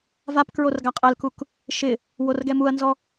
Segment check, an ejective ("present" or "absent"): present